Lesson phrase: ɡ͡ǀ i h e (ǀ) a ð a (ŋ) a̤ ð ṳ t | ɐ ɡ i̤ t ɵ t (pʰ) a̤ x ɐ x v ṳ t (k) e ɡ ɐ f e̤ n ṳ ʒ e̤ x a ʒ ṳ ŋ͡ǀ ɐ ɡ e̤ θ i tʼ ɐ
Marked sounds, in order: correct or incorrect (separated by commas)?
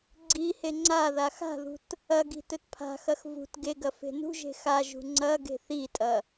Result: incorrect, incorrect, correct, incorrect